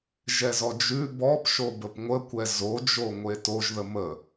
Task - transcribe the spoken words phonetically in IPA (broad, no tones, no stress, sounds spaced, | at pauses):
ʒ ɛ z ɔ d͡ʒ ʉ b ɔ p ʃ o b ə p ŋʷ ə kʷ ɛ z o d͡ʒ o ŋʷ e t o ʒ ð ə m ə